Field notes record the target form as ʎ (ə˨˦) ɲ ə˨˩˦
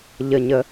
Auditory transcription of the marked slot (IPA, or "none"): ə˨˩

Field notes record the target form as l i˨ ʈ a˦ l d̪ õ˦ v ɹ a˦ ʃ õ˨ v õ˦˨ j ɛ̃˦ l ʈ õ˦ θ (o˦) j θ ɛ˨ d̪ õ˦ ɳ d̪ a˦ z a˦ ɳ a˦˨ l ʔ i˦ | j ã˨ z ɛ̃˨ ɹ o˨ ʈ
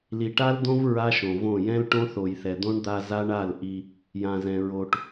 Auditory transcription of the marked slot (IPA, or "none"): o˨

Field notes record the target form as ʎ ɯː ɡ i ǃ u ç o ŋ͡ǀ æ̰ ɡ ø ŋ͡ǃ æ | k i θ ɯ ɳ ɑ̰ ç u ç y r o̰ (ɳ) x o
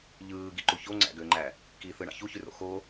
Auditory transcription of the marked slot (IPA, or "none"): none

